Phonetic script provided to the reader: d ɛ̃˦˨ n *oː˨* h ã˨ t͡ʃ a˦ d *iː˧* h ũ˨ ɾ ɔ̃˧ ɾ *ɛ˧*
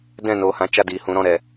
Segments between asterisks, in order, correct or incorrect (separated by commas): correct, incorrect, incorrect